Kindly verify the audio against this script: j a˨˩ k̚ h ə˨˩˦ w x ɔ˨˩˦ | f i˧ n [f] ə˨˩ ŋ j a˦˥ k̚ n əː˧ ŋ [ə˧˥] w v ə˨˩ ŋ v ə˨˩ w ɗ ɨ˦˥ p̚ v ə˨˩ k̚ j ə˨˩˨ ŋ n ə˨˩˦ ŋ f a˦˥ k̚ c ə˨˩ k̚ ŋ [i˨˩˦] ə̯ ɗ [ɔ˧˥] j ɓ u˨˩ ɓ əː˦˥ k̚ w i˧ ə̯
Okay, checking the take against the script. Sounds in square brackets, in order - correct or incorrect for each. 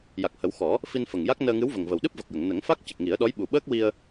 correct, incorrect: ɨ˧˥, correct, correct

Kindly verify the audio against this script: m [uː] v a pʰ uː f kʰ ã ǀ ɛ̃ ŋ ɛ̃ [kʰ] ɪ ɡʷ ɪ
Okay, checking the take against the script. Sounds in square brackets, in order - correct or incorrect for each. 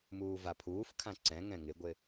correct, incorrect: ŋ

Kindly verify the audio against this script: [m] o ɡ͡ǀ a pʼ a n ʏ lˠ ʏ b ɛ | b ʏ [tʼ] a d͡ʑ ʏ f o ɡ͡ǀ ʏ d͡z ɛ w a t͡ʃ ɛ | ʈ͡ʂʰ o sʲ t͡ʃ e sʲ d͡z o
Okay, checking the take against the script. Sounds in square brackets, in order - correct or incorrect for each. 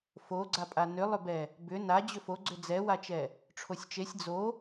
incorrect: f, incorrect: n

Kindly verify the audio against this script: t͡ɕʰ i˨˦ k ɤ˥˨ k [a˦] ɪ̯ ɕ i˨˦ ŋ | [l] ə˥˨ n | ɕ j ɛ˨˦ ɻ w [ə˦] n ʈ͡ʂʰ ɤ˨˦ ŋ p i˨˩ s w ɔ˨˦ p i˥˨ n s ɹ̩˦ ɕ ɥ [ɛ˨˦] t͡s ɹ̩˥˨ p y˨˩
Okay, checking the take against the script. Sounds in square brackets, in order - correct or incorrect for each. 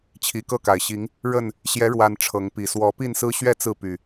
incorrect: a˨˩, incorrect: ɻ, incorrect: a˦, incorrect: ɛ˥˨

